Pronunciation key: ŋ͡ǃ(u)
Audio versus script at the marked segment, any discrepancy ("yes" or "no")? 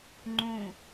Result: yes